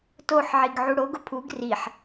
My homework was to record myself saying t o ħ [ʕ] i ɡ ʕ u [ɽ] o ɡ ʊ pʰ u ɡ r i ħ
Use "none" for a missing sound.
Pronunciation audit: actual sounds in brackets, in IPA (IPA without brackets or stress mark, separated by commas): ʕ, ɽ